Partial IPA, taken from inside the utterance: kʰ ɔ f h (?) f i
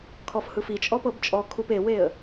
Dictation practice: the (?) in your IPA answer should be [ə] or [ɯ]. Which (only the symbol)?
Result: ɯ